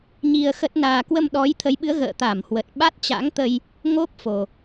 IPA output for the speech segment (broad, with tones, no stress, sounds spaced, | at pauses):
ɲ i˧ ə̯ x ə˦˥ t̚ n aː˧ k w ə˧ m ɗ ɔ˨˦ j t̪ʰ ə˨˦ j ɓ ɨ˨˦ ə̯ ɣ ə̰ː˧˨ t̪ a˧˩ m h w ə˨˩ t̚ ɓ a˦˥ t̚ t͡ɕ a̰˧˥ ŋ t̪ ə˧ j | ŋ o˦˥ p̚ f o˨˩